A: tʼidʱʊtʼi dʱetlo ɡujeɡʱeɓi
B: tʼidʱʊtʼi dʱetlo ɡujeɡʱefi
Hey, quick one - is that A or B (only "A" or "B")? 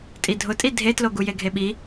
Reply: A